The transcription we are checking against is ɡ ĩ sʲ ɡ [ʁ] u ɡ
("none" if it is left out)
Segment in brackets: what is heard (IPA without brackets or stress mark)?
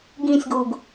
w